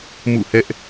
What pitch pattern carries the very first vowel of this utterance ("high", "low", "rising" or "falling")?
falling